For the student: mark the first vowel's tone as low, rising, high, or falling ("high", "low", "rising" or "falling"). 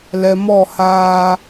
low